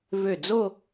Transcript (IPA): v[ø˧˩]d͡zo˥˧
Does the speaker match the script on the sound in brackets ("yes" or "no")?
yes